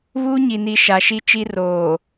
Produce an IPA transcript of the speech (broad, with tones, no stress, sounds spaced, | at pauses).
β uː˦ ɲ i˨ n i˨ ʃ a˨ ʃ i˦ t͡ʃ i˦ r oː˨